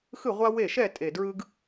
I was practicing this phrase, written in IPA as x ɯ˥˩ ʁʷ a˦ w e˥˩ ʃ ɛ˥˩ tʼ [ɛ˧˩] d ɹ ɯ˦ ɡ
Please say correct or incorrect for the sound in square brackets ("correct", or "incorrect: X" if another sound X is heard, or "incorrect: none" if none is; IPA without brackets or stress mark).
incorrect: e˧˩